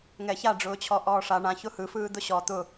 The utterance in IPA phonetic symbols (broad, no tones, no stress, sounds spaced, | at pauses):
ŋ ɛ ç a ɖ͡ʐ ʊː t͡ɕʰ ɔ ʔ ɔː ʂ a ɳ ã ç ʊ h ɯ f ɯː d̪ ʊ ɕ ɔ t̪ ʊ